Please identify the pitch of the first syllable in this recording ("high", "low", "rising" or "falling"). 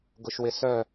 low